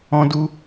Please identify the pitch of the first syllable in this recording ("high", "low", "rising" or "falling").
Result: high